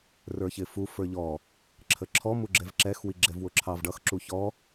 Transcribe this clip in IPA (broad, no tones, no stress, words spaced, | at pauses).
rə˞çɪfu fə˞ʎɔ | ǁʰəǁʰɔ muɡ͡ǁɛvǁɛx wiɡ͡ǁɛvwʊǁʰɑv ɖʌx ǁuçɔ